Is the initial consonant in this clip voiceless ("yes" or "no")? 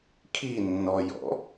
yes